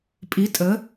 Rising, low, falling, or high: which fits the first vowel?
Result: rising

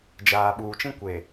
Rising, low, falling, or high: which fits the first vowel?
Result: low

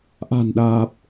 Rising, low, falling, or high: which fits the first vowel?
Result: low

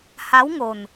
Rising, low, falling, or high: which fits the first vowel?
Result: rising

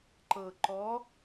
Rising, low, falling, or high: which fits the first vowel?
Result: low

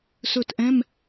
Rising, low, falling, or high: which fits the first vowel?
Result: falling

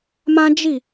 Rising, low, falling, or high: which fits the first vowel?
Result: high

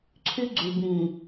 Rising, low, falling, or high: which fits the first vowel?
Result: high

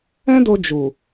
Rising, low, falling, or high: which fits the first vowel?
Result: high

